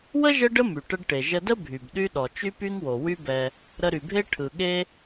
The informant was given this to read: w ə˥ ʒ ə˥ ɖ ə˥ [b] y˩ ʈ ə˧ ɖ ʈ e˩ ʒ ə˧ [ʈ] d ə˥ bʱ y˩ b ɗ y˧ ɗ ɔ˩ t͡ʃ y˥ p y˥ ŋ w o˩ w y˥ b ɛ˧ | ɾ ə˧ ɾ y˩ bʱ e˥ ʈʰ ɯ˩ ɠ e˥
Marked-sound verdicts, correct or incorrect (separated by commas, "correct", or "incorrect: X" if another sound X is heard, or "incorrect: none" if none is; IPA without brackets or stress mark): incorrect: m, incorrect: none